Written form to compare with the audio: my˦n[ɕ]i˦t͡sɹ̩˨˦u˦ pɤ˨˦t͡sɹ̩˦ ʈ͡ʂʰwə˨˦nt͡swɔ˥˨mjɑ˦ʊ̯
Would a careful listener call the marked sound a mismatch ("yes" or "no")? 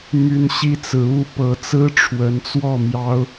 no